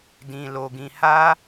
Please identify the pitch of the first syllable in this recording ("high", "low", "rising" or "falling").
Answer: low